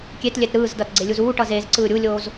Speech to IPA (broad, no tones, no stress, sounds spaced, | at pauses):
kʲ e t lʲ ɛ t ɾ ɯː z d ʌ t ɡ͡ǀ e lʲ u z uː ʈ ʌ z eː z ǀ ɯː ɾʲ u lʲ oː z